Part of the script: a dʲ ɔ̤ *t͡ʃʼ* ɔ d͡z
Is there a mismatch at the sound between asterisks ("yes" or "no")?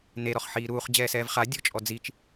no